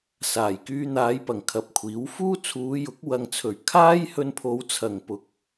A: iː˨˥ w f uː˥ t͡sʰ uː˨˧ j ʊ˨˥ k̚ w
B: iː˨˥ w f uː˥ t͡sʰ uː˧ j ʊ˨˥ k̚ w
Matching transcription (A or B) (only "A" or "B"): A